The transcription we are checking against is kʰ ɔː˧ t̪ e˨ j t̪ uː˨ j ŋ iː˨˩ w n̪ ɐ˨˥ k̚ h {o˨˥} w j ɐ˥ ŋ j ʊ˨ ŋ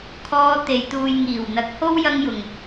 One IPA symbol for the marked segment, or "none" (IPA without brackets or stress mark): o˥